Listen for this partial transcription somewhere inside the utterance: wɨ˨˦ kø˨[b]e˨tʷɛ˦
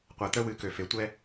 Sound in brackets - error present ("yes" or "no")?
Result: yes